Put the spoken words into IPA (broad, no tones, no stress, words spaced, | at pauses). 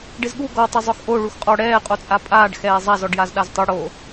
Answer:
ɖɪzɠu ɡɔ tˤɪzˤʊxʔo ɭuxqʼɔ ɽɛː qʼot͡sʼapʼaːɖ xɛːzˤaz ɔɖjazɗaztˤu ɽo